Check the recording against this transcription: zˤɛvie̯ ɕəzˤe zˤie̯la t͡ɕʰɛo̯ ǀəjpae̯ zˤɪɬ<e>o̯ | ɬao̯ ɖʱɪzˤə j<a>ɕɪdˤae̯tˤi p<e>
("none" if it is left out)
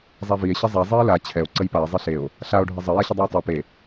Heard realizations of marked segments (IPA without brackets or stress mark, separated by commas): e, a, e